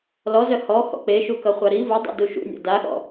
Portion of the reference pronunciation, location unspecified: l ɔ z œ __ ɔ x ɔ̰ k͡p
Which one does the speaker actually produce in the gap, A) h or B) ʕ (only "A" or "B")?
A